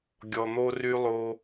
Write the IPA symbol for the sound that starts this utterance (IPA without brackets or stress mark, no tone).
ɡʲ